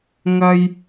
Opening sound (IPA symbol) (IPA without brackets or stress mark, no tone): ŋ